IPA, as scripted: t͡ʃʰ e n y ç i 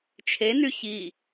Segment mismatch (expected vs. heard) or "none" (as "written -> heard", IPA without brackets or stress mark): none